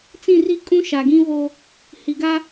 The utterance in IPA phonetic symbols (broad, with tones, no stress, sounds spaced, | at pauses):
t͡s ĩ˦˨ r i˦ kʼ ũ˦ ʃ a˨ ɡ ĩ˦ v o˦ | h i˨ ɡ a˦